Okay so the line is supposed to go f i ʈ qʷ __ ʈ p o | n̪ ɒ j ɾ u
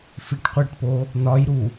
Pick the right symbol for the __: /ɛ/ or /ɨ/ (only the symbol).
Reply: ɛ